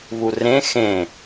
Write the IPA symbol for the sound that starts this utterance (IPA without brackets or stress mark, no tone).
β